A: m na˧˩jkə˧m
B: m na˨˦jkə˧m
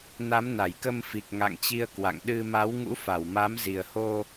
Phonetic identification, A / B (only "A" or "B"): A